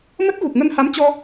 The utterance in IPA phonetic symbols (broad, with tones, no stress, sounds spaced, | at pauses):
m ə˦˥ t̚ ɣ u˨˩ k̚ ŋ ə˧ n h a˨˦ m t͡ɕ ɔ˧